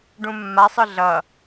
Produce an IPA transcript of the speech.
ɖ ũ mː a sˤ ɯ ɮ ʌ

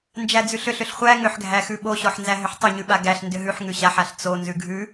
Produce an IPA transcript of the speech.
n d͡ʒ æ d͡z ʉ ɬ ʏ ɬ ʏ ɬ χʷ æ ŋ ʏ ħ ɡʱ æ x ʉ ɓ o ɕ ɔ ħ n z æ ɦ ʏ ħ tˤ ʏ ɲ ʉ ɓ a ɡ æ ɬ n d ʏ ɦ ʉ ħ ŋ ʉ ɕ a ħ a ɬ t͡s o n z ʉ ɡʱ ʉ

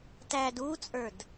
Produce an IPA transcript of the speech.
t æ d u t͡sʼ ə˞ d

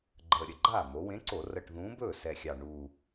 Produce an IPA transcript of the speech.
ɡ͡ǃ əː˨˩ ɾʲ ə˥˩ ɡ͡ǃ aː˥˩ m o˩˧ w ẽ˨˥ ǀ o˧˩˧ r ə˨˩ ʈ ð ũː˨˥ b ɵː˥˩ s ɛ˨˩ xʲ ɑ˨˩ ɳ uː˨˩

